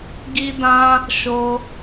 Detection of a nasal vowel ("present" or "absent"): present